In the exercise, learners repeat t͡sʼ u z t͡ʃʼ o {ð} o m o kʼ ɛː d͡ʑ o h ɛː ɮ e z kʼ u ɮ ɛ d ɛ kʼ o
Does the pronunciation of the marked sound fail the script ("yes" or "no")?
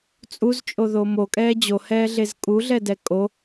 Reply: no